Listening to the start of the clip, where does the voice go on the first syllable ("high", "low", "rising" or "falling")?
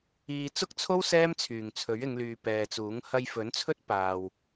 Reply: low